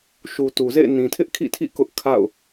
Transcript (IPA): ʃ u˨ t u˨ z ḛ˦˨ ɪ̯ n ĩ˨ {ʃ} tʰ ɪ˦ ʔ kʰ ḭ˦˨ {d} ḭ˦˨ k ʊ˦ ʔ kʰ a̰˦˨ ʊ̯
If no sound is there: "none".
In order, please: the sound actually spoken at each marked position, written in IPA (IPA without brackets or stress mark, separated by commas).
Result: none, tʰ